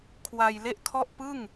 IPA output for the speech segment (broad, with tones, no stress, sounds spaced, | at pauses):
kʰ w a˧ j l e˥˩ ʔ kʰ ɔ˥˩ ʔ p ɯ˥˩ ŋ